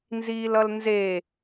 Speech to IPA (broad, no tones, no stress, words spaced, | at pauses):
nziːlʌlnze